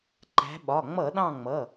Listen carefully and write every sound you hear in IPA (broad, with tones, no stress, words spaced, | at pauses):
ǃæ̤˨˦ɓɒ˩˧˩ ŋ͡mʌ˧˩˧ɗɑ̃˦˨ ŋ͡mʌ˩˧˩